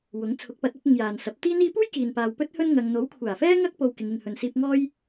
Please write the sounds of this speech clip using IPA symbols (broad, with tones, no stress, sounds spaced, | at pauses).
w ʊ˨˥ ŋ t͡sʰ ʊ˨˥ k̚ p ɐ˨˥ t̚ ɐ˨˥ p̚ ɪ˧ ŋ j aː˨ n s ɐ˨˥ p̚ t̪ iː˥ n̪ iː˥ p uː˥ j k iː˨ n p aː˨ w p ɵ˥ t̚ h ɵ˥ n ŋ ɐ˧ ŋ n̪ o˨˥ w kʷʰ aː˨˩ f ɛː˥ ŋ ɐ˥ k̚ p o˧ w k ɪ˨˧ ŋ ɪ˨ ŋ h ɵ˨ n s iː˧ p̚ ŋ ɔː˥ j